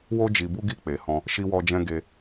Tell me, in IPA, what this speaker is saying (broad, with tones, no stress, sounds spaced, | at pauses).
w o˧ d͡ʒ i˨ b u˧ ɡ i˧ k͡p e˨ h ɔ̃˧ | ʃ i˧ w ɔ˧ d͡ʒ ɛ̃˧ ɡ e˧